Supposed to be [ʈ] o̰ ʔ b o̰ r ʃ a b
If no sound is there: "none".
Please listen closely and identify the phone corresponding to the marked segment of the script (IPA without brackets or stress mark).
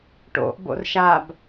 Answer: ʈ